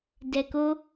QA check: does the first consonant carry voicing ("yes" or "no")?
yes